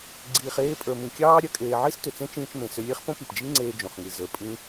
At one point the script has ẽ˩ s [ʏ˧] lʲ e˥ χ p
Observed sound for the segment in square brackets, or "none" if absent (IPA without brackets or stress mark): ʏ˧